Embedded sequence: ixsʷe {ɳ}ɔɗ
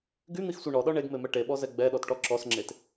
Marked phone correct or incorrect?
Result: correct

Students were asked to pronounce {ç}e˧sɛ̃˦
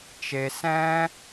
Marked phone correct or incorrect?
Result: incorrect: t͡ʃ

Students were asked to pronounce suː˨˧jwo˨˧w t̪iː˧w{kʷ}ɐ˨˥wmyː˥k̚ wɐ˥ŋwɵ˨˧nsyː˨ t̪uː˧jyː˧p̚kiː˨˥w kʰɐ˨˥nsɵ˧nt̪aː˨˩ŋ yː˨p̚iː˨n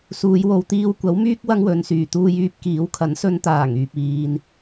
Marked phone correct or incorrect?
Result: correct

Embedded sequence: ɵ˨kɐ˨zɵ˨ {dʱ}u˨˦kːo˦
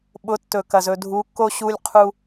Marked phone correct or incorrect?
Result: correct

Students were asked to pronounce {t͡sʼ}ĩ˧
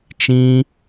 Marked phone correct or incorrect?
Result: incorrect: t͡ʃ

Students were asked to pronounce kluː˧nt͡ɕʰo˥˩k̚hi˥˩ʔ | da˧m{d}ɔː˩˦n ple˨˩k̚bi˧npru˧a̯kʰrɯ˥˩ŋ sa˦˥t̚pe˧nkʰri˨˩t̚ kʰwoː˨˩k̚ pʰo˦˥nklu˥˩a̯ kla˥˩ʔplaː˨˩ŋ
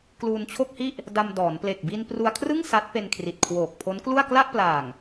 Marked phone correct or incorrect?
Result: correct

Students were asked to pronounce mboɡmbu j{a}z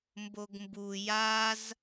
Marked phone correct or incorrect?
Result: correct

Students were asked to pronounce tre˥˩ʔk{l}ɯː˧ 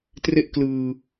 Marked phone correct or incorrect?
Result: correct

